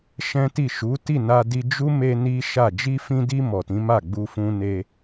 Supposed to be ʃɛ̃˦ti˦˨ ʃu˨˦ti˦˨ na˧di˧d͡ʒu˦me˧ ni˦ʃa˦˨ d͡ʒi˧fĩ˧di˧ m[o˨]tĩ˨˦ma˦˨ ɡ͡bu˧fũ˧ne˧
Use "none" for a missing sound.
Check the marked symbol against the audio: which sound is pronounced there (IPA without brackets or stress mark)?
ɔ˨